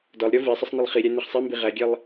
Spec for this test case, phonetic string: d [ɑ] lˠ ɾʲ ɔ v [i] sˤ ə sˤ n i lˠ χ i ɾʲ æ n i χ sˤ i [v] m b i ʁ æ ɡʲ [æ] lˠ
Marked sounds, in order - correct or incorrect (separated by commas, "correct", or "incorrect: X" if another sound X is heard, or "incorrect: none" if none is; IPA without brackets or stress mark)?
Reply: incorrect: ɒ, correct, incorrect: none, incorrect: ɛ